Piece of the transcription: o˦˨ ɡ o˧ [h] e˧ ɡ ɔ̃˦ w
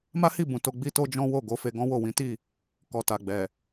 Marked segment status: incorrect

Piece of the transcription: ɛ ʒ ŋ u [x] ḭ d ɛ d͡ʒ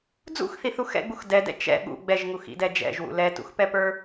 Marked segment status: correct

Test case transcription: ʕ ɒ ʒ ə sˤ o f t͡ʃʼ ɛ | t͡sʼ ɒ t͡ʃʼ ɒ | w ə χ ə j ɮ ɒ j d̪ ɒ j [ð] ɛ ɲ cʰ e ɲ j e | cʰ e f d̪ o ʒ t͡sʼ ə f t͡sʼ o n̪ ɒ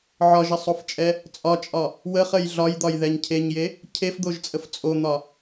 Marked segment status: correct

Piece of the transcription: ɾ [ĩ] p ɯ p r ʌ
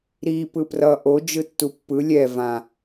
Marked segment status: incorrect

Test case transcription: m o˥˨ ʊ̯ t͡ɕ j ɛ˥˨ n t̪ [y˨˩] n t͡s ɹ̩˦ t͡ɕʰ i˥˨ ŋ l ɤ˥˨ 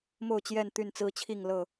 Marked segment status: incorrect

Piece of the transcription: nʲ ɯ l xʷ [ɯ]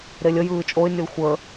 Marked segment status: incorrect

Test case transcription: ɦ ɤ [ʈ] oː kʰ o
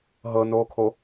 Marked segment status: incorrect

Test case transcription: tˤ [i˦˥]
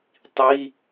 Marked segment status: incorrect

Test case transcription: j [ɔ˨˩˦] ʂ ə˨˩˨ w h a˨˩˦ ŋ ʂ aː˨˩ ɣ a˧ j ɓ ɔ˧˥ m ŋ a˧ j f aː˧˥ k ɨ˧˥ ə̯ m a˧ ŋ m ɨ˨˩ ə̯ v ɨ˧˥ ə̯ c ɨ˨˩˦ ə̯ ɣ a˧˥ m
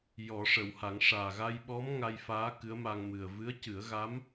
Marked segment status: correct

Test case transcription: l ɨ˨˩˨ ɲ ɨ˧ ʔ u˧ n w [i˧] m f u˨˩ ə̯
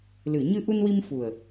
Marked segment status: correct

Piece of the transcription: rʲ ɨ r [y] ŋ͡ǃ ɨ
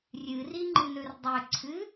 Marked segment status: incorrect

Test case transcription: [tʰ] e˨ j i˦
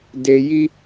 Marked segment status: incorrect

